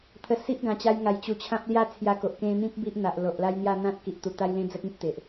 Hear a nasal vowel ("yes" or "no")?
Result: yes